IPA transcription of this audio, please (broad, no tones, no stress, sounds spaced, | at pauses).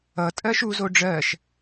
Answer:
ʌ tʼ ɜ ʃ u z o ɖ͡ʐ ɜ ʃ